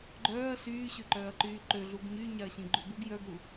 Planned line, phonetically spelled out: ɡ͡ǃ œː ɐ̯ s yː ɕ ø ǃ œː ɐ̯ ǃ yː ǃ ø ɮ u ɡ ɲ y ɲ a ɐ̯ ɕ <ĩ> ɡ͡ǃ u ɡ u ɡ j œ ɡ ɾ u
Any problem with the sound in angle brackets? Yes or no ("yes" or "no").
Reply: no